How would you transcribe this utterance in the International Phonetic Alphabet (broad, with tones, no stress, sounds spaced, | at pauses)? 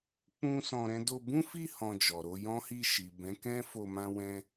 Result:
k͡p ũ˦ s ɔ̃˧ ɾ ɛ̃˦ d o˧ b ũ˦ f i˦˨ h ɔ̃˧ d͡ʒ ɔ˨ ɾ o˨˦ j ɔ̃˦ h i˦˨ ʃ i˨ b ɛ̃˨˦ k ɛ̃˦ f o˧ m ã˦ w ɛ̃˦